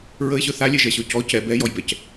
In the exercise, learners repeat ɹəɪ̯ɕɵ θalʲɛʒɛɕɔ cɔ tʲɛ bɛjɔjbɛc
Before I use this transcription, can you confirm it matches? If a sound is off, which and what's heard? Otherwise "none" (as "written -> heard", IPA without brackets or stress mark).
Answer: tʲ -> c